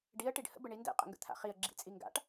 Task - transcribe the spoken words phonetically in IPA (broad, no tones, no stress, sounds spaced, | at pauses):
ɖ i ə̯ ʈ i ɖ h ə̰ b ə ɳ i n d ɛ̰ qʼ ə̰ ŋ ɡ ə̰ t̪ʰ a̰ χ i ə̯ ɡ͡ǁ ḭ t͡sʼ i ŋ ɡ a̰ ʈ